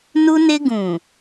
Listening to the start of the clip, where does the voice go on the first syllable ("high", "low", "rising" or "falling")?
high